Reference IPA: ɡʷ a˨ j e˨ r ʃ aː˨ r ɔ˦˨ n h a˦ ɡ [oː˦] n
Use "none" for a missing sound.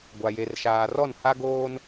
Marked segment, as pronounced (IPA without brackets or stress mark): oː˦